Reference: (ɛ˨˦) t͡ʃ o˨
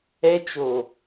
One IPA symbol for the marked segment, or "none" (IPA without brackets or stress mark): ɛ˦